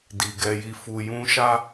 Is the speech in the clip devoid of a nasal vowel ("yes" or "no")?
no